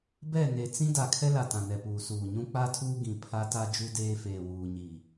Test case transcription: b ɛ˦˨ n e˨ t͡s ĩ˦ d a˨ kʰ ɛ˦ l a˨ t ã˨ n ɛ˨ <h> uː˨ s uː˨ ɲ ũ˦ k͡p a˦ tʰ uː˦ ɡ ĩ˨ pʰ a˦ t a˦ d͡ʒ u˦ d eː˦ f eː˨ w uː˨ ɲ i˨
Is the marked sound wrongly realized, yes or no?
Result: yes